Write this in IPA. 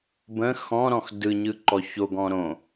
b ə̃ x ɔ̃ ɾ ɔ̃ x d ɯ ɲ ɯ ǃ ɔ ç o ɡ ɔ̃ ɾ õ

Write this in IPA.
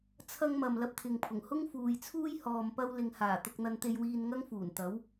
t͡sʰ ɐ˧ ŋ m ɐ˨ m l ɐ˧ p̚ t̪ʰ ɪ˨ ŋ pʰ ʊ˨˩ ŋ h ʊ˥ ŋ f uː˨ j t͡sʰ uː˥ j h ɔː˨ m p ɐ˧ w l ɪ˨ ŋ h aː˨˩ t̪ ʊ˧ k̚ n̪ ɐ˧ n t̪ e˧ j w iː˧ n ŋ ɐ˥ ŋ f uː˨˩ n t̪ ɐ˨˥ w

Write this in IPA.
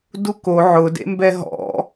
d u k o ʕ ʊ d ḛ m b ɛ ɦ ɔ̰

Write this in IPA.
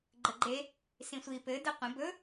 ɡ͡ǃ ə ɡ͡ǃ e | s ĩ sʷ i p ɘ d ɘ qʷ ə̃ b ɵ

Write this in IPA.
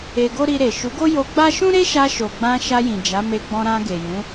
e˧ ɡ o˦ ɾ i˧ ɾ e˨ ʃ u˨˦ ɡ o˦ j o˧ ɡ͡b a˦ ʃ ũ˦ ɾ e˦ ʃ a˧ ʃ o˨ ɡ͡b ã˧ ʃ a˧ j ĩ˨ d͡ʒ a˨˦ m e˧ ɡ͡b ɔ̃˧ ɾ ã˧ ɡ e˨ j ũ˨˦

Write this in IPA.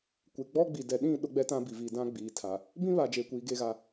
kʷ e˨ ɡ͡b ɔ˦ ɡ͡b i˨ d ɛ˨ ɗ ĩ˦˨ ɗ ʊ˦ ɡ͡b ɛ˦ t ã˦ b i˨ v i˨ d ã˦ ɡ͡b iː˨ tʰ a˨ | b ĩ˦ β a˨ d͡ʒ eː˨ kʷ iː˨ ɡ e˦˨ ɣ a˦˨

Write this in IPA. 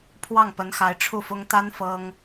pʰ w ɑ˥˩ ŋ p ə˧˥ n x a˧˥ ɪ̯ ʈ͡ʂʰ u˥˩ f ʊ˥ ŋ t̪ a˥ n f ɤ˥ ŋ

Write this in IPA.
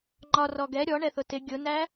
ŋ͡ǃ ɒ r ɔ ɡ ɛ ɾʲ ɔ ɳ ɛ θ ʊ t ɪ ɡʲ ʊ n æ

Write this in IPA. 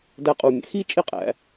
d æ˧ qʼ u˩ mʲ æ̰˩ x i˥ t͡ʃʼ e˥ qʼ æ̰˩˧

